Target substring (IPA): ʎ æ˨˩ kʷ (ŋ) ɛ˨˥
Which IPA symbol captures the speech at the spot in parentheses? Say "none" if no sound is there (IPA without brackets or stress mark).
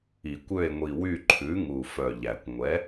ŋʷ